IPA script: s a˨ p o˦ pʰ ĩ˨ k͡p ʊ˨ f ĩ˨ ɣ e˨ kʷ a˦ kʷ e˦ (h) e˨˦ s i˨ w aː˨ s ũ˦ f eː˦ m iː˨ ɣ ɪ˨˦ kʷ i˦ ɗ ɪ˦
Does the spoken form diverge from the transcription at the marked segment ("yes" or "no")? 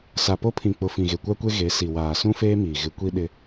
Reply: yes